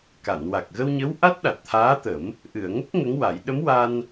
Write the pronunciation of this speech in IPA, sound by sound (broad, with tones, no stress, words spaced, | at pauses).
ka˨˩˨nwa˨˩k̚ɣə˧wɲə˧˥w ʔa˦˥t̚ɗa˨˩t̚t̪ʰaː˧˥t̪ə˨˩˦m | ʔɨ˨˩˨ə̯ŋə˦˥k̚ ŋə˧˥ŋwa˨˩˦j ɗə˧˥mwa˧n